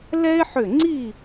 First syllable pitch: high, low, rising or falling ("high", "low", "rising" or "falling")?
high